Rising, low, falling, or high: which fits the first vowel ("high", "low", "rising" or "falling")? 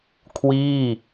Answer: falling